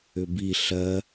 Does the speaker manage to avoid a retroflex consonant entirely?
yes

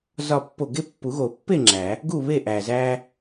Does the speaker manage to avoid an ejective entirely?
yes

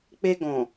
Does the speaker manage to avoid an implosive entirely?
yes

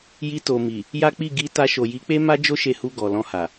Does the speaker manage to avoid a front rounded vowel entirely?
yes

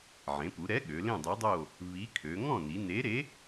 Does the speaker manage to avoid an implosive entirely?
no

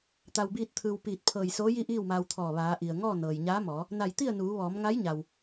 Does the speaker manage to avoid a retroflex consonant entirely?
yes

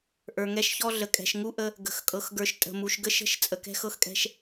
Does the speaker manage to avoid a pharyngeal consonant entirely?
yes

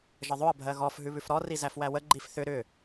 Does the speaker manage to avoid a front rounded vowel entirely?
no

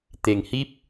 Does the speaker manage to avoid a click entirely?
yes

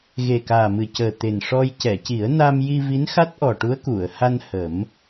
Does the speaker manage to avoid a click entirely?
yes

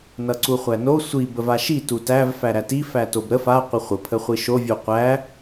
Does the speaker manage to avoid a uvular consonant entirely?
no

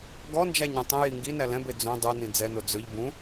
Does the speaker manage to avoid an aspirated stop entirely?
yes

